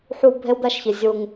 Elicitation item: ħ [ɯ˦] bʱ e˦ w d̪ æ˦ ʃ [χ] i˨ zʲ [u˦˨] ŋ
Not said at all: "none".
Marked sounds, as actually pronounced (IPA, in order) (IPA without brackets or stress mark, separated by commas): u˦, ç, u˦